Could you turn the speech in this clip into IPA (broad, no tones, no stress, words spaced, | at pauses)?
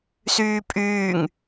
syːpʼyːŋ